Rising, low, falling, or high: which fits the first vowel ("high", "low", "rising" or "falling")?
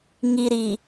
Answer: low